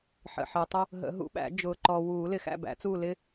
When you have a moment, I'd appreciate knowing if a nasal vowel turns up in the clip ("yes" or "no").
no